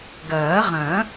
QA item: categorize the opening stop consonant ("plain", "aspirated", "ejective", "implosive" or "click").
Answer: plain